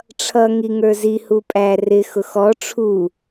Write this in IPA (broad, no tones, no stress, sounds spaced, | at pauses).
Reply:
ʈ͡ʂʰ ʌ ŋ i ŋ ə˞ z i h u pʼ æ r ɪ x ʊ x ɔ ʈ͡ʂʰ u